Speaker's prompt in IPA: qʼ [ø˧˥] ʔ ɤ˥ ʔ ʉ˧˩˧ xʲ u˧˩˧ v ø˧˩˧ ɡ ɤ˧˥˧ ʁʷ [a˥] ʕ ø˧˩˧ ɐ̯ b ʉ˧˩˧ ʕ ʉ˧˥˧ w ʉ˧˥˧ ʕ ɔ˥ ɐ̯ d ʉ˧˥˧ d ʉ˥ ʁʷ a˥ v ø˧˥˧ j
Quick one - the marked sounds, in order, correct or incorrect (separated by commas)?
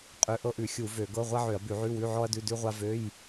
correct, correct